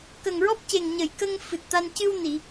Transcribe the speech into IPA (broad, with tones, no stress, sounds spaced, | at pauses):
k ə˨˩ ŋ ɹ ɔ˦˥ p̚ c e˨˩ ŋ ɲ ə˨˩˨ j k ə˧ ŋ f ɨ˨˩ t̚ t̪ a˧ n c ɨ˧ w n i˨˩˨